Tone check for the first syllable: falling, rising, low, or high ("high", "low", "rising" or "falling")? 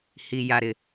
low